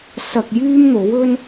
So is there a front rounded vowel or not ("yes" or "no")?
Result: yes